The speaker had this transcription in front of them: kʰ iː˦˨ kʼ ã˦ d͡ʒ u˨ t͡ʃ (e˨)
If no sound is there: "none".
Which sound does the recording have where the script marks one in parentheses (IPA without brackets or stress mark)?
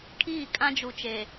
e˨